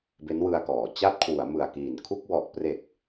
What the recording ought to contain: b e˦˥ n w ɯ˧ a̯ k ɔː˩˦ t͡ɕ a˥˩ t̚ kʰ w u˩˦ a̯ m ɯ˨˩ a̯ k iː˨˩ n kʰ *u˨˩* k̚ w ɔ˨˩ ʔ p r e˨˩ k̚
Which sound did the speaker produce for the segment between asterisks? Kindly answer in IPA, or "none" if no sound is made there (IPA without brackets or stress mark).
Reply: u˥˩